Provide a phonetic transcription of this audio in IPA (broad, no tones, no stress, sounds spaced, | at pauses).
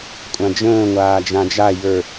kʷʼ ã d͡ʒ ə̃ː ŋʷ aː d͡ʒ ã d͡ʒ a j ə˞